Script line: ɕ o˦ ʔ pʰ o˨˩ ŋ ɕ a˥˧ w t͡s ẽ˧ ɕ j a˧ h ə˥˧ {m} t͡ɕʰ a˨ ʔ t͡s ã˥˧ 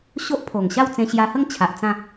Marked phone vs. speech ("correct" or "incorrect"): incorrect